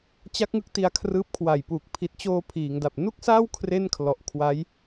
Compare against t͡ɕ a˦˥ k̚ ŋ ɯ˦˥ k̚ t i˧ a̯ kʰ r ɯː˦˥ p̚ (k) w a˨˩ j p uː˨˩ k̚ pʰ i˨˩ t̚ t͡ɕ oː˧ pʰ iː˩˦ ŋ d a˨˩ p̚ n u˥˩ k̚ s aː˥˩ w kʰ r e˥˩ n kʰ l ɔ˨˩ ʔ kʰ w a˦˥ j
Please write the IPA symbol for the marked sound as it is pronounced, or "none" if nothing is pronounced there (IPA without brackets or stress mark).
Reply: kʰ